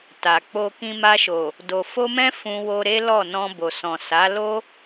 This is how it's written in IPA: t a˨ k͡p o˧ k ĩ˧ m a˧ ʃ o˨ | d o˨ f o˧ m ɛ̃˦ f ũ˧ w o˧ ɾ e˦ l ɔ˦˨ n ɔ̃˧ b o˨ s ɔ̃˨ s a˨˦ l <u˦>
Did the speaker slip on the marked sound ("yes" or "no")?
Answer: yes